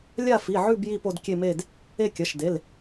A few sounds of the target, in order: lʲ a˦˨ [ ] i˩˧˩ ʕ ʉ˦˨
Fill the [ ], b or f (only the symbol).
f